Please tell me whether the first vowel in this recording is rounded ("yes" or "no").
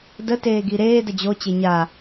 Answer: no